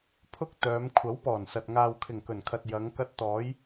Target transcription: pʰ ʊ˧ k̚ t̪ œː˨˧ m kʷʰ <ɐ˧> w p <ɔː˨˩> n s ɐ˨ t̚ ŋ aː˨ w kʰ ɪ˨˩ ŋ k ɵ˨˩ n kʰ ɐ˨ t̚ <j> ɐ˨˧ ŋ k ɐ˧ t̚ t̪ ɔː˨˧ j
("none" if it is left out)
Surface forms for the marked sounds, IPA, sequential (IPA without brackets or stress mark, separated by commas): ɐ˨˥, ɔː˨˩, j